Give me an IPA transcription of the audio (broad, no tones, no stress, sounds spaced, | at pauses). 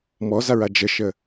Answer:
m ɔ z a ɹ a d͡ʒ ə ʃ ə